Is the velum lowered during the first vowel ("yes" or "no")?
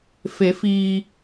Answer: no